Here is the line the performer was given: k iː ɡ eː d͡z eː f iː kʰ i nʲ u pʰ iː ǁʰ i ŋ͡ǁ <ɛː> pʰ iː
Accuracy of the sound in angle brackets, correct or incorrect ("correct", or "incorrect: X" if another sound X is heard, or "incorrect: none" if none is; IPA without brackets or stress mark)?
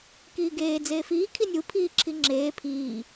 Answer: incorrect: eː